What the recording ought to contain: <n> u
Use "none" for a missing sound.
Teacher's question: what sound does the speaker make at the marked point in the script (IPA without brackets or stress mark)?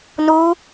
n